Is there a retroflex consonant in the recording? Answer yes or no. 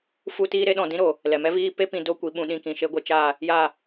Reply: no